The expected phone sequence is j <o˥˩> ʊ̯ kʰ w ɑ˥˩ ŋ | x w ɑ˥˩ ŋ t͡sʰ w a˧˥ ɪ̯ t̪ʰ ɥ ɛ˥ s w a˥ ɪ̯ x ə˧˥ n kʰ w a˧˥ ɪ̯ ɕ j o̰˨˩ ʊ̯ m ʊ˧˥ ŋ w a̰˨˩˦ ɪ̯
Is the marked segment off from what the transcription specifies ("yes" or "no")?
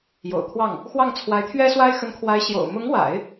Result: yes